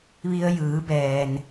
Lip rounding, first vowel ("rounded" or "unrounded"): unrounded